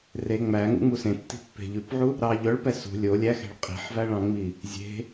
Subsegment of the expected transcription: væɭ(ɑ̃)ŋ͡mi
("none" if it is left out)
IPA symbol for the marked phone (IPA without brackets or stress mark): ɑ̃